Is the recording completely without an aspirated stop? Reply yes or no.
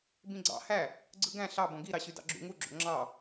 yes